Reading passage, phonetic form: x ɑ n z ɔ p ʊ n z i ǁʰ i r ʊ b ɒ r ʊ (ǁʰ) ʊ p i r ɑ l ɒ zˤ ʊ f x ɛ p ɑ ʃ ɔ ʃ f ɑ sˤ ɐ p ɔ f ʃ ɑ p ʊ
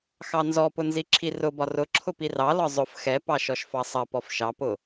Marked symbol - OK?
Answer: yes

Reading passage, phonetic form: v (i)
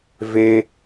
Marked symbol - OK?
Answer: no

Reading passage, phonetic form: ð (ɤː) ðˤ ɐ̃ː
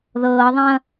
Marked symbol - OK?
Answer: yes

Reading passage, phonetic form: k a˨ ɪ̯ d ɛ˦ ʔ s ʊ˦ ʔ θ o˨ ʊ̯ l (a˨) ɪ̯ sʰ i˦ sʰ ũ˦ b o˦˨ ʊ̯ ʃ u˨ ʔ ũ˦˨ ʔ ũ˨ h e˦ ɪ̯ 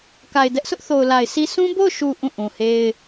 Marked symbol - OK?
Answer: yes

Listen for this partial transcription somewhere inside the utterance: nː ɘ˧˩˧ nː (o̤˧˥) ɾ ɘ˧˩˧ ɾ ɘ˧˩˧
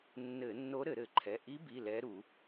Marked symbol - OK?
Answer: no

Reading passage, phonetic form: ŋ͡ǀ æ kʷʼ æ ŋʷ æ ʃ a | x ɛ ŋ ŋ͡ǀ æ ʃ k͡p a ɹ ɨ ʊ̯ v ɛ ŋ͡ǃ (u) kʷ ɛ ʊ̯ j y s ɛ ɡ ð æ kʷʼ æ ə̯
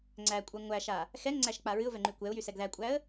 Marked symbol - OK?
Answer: no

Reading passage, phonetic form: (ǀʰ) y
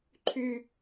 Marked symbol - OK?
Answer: no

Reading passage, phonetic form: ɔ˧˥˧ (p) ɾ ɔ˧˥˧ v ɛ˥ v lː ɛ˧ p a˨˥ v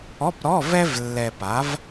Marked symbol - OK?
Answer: yes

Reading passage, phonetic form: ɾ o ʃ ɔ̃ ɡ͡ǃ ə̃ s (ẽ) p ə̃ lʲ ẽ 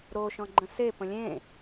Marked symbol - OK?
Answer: no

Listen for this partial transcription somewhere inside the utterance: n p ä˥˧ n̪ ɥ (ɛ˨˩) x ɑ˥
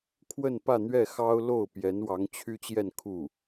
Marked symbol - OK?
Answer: no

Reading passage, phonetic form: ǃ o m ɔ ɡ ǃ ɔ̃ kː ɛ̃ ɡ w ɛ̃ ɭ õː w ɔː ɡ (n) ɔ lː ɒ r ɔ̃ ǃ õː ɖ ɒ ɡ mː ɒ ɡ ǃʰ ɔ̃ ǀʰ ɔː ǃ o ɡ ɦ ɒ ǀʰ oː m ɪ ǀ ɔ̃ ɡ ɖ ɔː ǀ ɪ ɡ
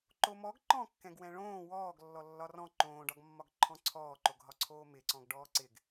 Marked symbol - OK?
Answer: no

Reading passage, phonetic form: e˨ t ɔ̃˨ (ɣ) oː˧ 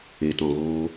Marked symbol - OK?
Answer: yes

